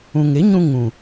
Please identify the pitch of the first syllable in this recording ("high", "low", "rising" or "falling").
low